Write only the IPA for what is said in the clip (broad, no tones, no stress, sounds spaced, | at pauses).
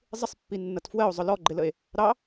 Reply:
zˤ ɪ sˤ pː i nː ʌ t f w ɜ o̯ zˤ ʊ l ɔ ɡ͡ǃ ɪ l ə e̯ | ɾ ɑ